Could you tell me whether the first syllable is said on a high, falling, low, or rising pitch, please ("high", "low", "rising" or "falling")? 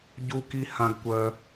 high